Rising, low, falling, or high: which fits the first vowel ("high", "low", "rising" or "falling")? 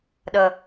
low